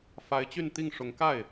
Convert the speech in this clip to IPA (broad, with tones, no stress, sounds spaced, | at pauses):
f a˧˥ ɪ̯ t͡ɕ y˥˧ n t̪ i˥˩ ŋ ʂ ʊ˧˥ ŋ k a˥˩ ɪ̯